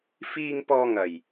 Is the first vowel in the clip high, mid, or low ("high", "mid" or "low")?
high